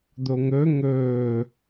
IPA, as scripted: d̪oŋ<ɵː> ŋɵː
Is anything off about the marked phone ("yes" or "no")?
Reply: yes